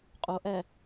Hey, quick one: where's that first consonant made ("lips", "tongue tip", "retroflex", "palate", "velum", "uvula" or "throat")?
uvula